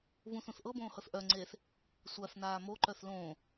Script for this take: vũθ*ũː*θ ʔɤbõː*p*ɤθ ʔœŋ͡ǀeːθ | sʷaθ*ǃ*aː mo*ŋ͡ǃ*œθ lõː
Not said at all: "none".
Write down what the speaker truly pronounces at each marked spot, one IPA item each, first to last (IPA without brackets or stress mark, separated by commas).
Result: ũ, h, n, ǃ